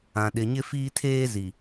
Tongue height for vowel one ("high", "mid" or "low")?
low